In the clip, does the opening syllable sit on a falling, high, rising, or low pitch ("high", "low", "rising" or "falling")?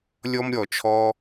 high